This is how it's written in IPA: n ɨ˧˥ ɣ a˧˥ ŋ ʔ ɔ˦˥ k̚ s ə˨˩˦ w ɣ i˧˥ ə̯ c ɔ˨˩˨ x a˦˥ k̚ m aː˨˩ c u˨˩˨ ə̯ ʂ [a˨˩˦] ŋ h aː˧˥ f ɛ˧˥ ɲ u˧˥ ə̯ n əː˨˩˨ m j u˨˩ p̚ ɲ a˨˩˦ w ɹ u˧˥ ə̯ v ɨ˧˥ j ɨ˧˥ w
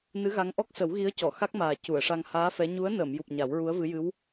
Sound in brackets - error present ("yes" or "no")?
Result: yes